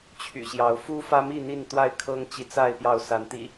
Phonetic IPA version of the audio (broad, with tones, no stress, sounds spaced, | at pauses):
t͡ɕʰ y̰˨˩ ɕ j ɑ˨˦ ʊ̯ f u˦ f ä˦ m i˥˨ n̪ i˥˨ n t̪ w a˥˨ ɪ̯ kʰ ɤ˦ ŋ t͡ɕ i˨˦ t͡s a˥˨ ɪ̯ p j ɑ˥˨ ʊ̯ s a˨˦ n t̪ ḭ˨˩